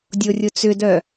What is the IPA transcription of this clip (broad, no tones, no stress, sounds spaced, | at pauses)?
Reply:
dʲ o rʲ ʊ t͡s ʏ d œ